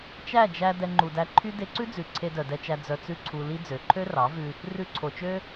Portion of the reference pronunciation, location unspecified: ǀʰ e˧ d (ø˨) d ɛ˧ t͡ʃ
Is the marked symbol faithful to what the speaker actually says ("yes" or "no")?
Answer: no